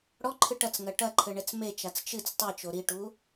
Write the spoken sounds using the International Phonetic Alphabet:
ɽ ɔ ǃʰ ɨ ʈ ɐ t͡s ŋ ɐ ʈ ɐ ǃʰ ɘ ɳ ɛ t͡s m e t͡ʃ a t͡s t͡ʃ ɨ t͡s tˤ i t͡ʃ o ɾ i ʈ u

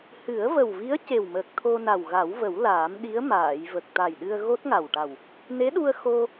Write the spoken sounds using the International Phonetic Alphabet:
h ɨ˨˩˦ ə̯ v ə˨˩ w v i˧˥ ə̯ c e˨˩ w m əː˨˩ k̚ t̪ʰ o˧ n a˨˩ w ɣ a˨˩˦ w v ə˨˩˦ w l aː˨˩˦ m ɗ i˧˥ ə̯ m aː˨˩˨ j v ə˨˩ k̚ t̪ a˨˩ j ɗ ɨ˧ ə̯ ɣ o˦˥ t̚ ŋ a˨˩ w ʈ a˨˩ w | n e˧˥ ɗ u˧ ə̯ x o˧

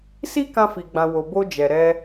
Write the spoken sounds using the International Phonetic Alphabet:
s i˦ k ã˧ f i˨ ɡ͡b ã˨ w o˨ b o˧ d͡ʒ ɛ˨ ɾ ɛ˧

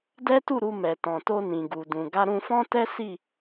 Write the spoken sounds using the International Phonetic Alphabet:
d ɛ˦ t u˦˨ ɾ u˧ m ɛ˨ t ɔ̃˨ t o˧ n ĩ˨ ɡ u˨ d ũ˨ ɡ a˧ ɾ ũ˧ f ɔ̃˦ t ɛ˦ s i˦˨

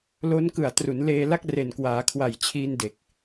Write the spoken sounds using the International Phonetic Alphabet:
l o˦˥ n k ɯ˨˩ a̯ t r u˩˦ n l eː˧ l a˥˩ k̚ r e˨˩ n k w aː˩˦ kʰ w a˨˩ j t͡ɕʰ iː˧ n d e˨˩ k̚

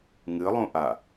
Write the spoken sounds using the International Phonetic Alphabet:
ŋ ɨ lˠ ũ ʔ a

